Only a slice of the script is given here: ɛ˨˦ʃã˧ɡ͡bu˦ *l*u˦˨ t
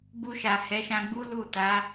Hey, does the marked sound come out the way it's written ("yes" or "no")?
yes